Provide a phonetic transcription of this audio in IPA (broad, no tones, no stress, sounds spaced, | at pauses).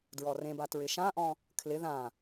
d ɹ ɔ r ẽ b a t ɹ ɪ ʃ ã ʔ ɔ̃ | kʰ l ɪ ð ã